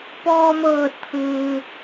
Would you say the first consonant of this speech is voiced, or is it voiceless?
voiceless